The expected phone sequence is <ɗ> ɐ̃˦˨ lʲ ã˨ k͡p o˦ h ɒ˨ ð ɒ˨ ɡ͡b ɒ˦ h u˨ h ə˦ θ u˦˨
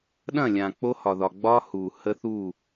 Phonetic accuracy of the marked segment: correct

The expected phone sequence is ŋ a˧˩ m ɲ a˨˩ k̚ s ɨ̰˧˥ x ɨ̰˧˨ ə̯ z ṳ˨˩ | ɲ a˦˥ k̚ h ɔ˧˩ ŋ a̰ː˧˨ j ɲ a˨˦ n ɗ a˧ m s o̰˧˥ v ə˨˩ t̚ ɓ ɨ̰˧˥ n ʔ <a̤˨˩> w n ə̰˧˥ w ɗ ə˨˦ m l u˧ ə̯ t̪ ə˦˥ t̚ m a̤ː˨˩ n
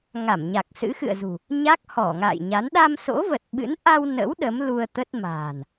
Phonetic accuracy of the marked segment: incorrect: a˧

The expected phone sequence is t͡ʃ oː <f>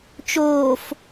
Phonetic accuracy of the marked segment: correct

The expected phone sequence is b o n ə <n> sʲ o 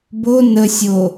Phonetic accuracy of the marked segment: incorrect: none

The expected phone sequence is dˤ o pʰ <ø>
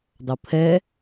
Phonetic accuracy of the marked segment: incorrect: ɛ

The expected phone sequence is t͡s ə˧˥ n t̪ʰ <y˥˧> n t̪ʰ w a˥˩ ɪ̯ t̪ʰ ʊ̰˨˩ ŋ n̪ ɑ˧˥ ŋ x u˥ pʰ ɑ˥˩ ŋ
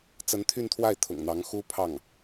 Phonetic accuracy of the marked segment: correct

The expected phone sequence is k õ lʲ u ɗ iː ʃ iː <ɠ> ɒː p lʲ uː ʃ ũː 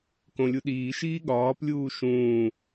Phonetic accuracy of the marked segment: correct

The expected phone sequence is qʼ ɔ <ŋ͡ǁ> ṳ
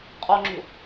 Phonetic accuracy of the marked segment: correct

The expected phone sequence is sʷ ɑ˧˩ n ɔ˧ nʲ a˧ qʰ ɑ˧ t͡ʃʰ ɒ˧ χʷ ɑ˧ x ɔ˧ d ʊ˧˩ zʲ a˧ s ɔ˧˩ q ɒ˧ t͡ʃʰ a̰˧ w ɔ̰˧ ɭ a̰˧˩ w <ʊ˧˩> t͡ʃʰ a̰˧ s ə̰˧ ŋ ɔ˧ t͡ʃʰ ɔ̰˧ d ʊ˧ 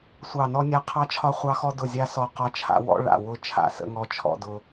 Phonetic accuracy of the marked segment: correct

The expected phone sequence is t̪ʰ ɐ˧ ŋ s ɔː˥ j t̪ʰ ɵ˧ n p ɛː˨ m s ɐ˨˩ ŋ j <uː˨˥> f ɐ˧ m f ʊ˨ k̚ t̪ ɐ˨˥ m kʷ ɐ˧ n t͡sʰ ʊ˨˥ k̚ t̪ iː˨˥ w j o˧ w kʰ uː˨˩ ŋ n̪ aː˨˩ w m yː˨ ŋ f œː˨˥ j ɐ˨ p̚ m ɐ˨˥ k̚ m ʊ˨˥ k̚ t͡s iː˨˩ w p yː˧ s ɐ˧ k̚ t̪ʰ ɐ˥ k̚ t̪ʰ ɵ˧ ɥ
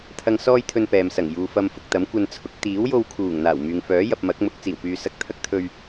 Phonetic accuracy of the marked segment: incorrect: uː˨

